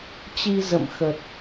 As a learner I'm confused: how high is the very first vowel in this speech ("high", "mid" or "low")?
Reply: high